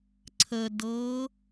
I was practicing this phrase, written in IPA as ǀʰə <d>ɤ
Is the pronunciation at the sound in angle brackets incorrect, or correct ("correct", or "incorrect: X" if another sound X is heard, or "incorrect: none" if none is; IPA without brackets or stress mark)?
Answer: correct